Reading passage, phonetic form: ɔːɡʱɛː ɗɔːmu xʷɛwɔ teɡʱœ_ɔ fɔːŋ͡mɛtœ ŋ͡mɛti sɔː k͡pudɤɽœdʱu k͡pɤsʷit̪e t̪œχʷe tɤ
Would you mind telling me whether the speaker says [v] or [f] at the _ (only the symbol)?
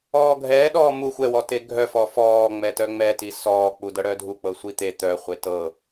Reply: f